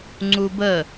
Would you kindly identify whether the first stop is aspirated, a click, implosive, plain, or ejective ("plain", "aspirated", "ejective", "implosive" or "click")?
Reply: click